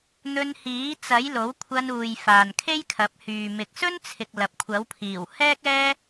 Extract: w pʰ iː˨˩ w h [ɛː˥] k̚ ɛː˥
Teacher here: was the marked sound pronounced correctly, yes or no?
yes